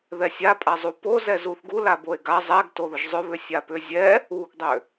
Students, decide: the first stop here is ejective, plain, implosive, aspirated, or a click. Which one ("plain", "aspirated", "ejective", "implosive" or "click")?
ejective